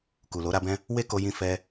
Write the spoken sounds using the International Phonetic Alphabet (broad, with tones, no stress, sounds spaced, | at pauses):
k u˨ l o˨˦ ɾ a˦ b ɛ̃˦ | w e˦ k o˧ j ĩ˧ f ɛ˧